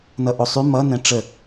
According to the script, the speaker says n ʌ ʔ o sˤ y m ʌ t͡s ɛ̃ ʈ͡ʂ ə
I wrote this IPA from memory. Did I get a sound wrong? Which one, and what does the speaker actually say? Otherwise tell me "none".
t͡s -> n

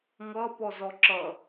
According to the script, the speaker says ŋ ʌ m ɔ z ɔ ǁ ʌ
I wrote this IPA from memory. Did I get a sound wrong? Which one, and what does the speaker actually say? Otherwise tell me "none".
m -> p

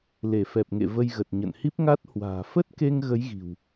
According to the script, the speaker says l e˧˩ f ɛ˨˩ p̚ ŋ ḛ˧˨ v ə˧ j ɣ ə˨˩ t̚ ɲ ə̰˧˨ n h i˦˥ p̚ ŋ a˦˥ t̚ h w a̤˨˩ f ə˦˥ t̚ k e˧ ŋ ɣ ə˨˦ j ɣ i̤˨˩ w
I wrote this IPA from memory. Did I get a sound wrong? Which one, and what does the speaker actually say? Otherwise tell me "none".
a̤˨˩ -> a̤ː˨˩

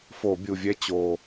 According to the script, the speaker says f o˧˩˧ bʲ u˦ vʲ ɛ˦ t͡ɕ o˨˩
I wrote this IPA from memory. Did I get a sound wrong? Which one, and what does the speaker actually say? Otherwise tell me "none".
u˦ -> u˨˩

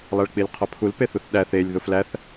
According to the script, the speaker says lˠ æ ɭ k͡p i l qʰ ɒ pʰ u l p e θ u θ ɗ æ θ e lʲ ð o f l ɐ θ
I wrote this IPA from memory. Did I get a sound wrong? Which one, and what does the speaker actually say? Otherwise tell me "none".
ɐ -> æ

